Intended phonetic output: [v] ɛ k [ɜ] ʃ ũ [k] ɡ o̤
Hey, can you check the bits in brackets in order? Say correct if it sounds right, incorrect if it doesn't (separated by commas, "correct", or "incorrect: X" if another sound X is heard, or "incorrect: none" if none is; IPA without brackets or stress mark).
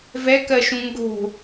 correct, correct, incorrect: ŋ